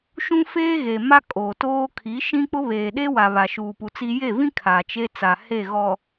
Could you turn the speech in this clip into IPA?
ʃũ˦feː˦ɣe˨ ma˦kʼoː˨toː˦ kʰi˨˦ ʃĩ˦k͡pʊ˦ βeː˨ɗe˦wa˨ βa˨ʃuː˨pu˨ t͡si˦ je˦˨vĩ˦ kʰa˨t͡ʃe˦ t͡sa˨ he˦˨ ɣɔ˨

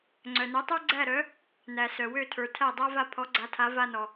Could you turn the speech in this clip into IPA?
ŋ͡ǀœ˩nœ˩˥tˤə˞˥ ɡ͡ǀæ˥˩ ɾœ˩˥ | næ˩ sœ˩wø˥˩tʰə˞˩ tʰæ˥˩dˤa˥va˥˩ pʰɔ˩˥ɡ͡ǀa˩˥tʰa˩˥ va˧nɔ˩

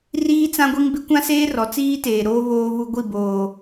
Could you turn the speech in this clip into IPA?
riː˦t͡sã˦ɡʷi˦ŋ bɪ˦kʷã˦seː˦ rɔ˨t͡siː˦teː˨ɾoː˦ βoː˦βu˦ɡʷi˦˨boː˨

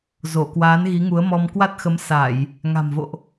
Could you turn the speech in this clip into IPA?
zo˧˩kwaː˨˦n ɣi˨˦ŋu˨˦ə̯mɔ˧m kwa˦˥t̚xə˨˦m sa˧˩˨j | ŋa̤˨˩mvo̰˧˨ʔ

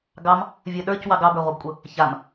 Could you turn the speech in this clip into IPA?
ɡɑm | vʲə˞ɗə˞cwɑɡ ɑbə˞ʁʷɤbkʷʼə | çam

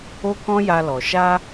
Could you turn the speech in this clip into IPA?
o˦kɔ̃˦ja˧lɔ˨ ʃa˧

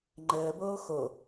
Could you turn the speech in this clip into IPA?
ŋ͡ǃəːboː xo

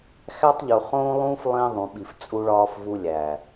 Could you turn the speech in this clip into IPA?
xæ˦tˤʎu˨ χõː˦lˠũː˦f lˠĩː˦ðˤũ˨ɓi˨f t͡sʼu˦ɭɒː˦fvu˦ lʲæ˨

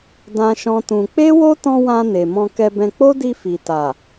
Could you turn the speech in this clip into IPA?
dã˦ʃɔ̃˦tũ˧ k͡pe˦wo˦tɔ̃˧ wã˧ne˨ mɔ̃˧kɛ˧bɛ̃˧ k͡po˦di˧ fi˨ta˨

